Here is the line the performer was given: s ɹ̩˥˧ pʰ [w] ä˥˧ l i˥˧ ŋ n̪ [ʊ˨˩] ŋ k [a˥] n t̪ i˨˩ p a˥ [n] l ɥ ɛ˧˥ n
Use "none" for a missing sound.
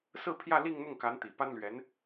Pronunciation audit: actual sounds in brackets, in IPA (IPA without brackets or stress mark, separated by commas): j, ʊ˥˩, a˧˥, n